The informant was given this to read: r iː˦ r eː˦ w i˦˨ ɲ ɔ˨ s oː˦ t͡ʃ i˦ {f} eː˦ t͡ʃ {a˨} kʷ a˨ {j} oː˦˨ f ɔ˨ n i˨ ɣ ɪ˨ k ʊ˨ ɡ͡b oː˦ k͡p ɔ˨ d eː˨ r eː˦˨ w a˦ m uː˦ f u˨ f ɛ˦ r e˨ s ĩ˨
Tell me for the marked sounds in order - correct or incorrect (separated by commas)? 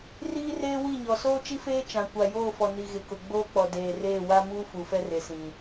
correct, incorrect, correct